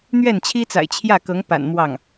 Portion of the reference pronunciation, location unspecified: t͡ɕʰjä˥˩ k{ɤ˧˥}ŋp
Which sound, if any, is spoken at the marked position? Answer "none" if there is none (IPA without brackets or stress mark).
ɤ˧˥